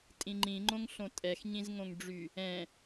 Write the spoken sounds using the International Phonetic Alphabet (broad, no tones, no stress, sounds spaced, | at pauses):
tʼ ĩ ŋ͡ǃ ĩ ŋ͡ǃ õ ŋ ɬ õ tʼ ɛ x ɲ ĩ z ŋ õ ŋ ɖ͡ʐ y | ɛ̃